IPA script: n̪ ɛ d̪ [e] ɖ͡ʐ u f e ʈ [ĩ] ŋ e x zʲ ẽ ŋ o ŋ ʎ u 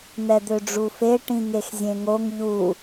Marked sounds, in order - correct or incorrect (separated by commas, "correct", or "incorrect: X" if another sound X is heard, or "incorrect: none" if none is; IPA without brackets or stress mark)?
incorrect: ø, correct